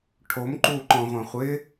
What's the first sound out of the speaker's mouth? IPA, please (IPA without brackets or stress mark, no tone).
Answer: ʈʰ